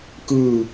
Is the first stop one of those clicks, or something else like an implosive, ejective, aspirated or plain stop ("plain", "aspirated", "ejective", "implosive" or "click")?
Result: plain